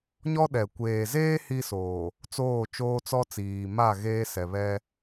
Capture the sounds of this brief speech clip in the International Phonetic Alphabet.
ɲ ɔ˦ ɗ ɛ˨ kʷ eː˨ z eː˦ h i˦ s oː˨ | t͡s oː˦˨ t͡ʃ oː˦ t͡s ɔ˦ t͡s iː˨ m a˦˨ ɣ eː˦ s ɛ˨ β ɛ˦

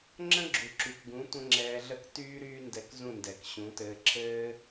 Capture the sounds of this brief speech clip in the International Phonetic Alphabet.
ŋ͡ǁ ə̃˦ ɡ͡ǁ u˨ ǁ y˨ k ɡ ũ˨˦ tʷ ə̃˦ ŋ͡ǁ ɛː˧ ɮ ə˦ k t yː˦ ɾ yː˦ n d ɛ˧ k z ũ˦˨ n d ɛ˨ k ɕ ũ˨˦ t ɘː˧ ǁ ɘː˦

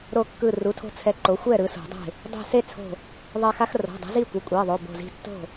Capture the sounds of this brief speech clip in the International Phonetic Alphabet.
ɾ o˧˩ kː ɯ˧˩ r u˩˧˩ tʰ o̤˦ t͡sʰ ɛ˨˥ ǃ o˩˧˩ xʷ ɛ˥˩ ɾ ɯ˨˩˦ s o̤˨˩˦ dˤ e̤˥˩ | dˤ i̤˧˩ s e˦ t͡sʰ o̤˧˩ | ðˤ ɛ˧˩ x a˦ x r o̤˩˧˩ dˤ o̤˨˥ z i˥˩ kʷ ɛ˩˧˩ kʷʼ e˩˧˩ ðˤ o˩˧˩ b o̤˧˩ z i̤˦ tː o̤˥˩

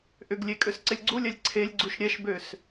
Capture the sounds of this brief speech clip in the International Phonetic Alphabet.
ʔ ʏ ɡ lʲ e kʼ ø s ǀ ɪ lʲ ɡ͡ǀ u lʲ ɛ lʲ ǀʰ e lʲ ɡ͡ǀ u ʃ ɾʲ ɛ ʃ b ø s

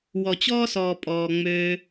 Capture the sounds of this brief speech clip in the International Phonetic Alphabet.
w ɔ˨ t͡ɕ ɔː˦ s ɔː˨ pʼ ɔː˨ ŋ͡m øː˧

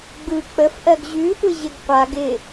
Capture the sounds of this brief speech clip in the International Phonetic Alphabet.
ɡ͡b ɯ k͡p ə f ʔ ɜ ɡ ʑ ʉ tʷ ɪ ʑ ɪ ɡ qʷ a ɡ ɪ

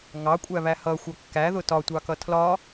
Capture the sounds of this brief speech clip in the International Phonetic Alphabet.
ŋ ɑ kʷʼ æ β æ h ʌ xʷ ʌ kː æ ð ʊ t ɒ tʷ ɑ k ʌ tʰ l ɒ

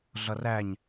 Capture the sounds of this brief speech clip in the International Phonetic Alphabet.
ɮ ʌ r æ ɲ

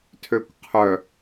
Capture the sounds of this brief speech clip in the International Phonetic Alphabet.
tʰ ø kʷ qʰ œ

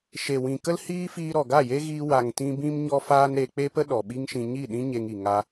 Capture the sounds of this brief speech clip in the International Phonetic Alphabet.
ʃ e˨ w ĩ˨ k ə˦ l h iː˦ f iː˧ ɾ ɔ˨ ɡ a˦˨ j e˦ ɣ iː˧ w a˨ ŋ t ĩ˧ b ĩ˧ m ɲ ɔ˧ f aː˦ n ɾ e˧ k͡p e˦ p ə˦ ɗ ɔ˨ ɓ i˦ ŋ ʃ ĩ˧ ɲ i˦˨ ɗ ĩ˦ ɲ e˧ ŋ i˨ ŋ a˧

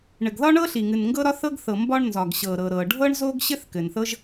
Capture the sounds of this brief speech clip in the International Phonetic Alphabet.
ɳ ɘ˩ ɡ ð ɒ˥ ɳ ɤ˥ ɬ i˩ ŋ ɨ˩ n ŋ ɡ ɤ˥ ɾ ɒ˥ θ ɤ˥ ɡ θ ɤ˩ m b ɒ˥ ɳ n z ɒ˩ ɡ ɕ ɤ˩ ɾ ɤ˩ ɾ ɤ˩ ɖʱ ɤ˥ ɳ z o˥ ɡ ɕ ɘ˥ θ k ɘ˩ n θ ɤ˥ ʒ

